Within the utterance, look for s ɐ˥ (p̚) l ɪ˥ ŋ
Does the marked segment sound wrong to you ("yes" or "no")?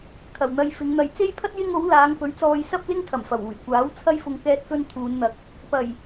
no